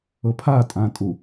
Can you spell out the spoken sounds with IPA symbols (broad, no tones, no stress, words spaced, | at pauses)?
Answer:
ɤpʰatʼãtʼu